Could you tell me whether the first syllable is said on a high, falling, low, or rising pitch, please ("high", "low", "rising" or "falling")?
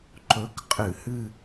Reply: rising